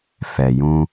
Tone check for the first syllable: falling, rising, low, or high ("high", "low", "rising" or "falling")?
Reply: low